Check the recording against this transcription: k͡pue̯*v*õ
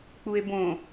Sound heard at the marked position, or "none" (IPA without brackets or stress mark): b